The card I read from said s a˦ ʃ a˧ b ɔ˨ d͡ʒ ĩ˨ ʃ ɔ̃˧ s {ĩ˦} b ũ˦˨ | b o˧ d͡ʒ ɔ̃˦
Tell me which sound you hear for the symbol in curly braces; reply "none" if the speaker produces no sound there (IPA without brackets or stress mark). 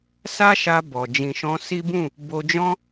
i˦